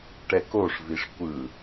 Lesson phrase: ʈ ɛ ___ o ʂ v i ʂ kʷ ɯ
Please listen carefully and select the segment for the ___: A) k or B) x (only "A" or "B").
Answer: A